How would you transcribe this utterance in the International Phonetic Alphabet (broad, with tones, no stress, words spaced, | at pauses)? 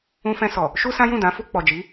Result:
ũ˧fɛ̃˧sɔ˨ | ʃu˦sã˦ jũ˦˨dã˨˦ fu˧k͡pɔ˨ d͡ʒi˨˦